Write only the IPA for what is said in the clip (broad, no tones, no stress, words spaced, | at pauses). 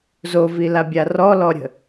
zovilabʲa rɔlɔɾʲə̤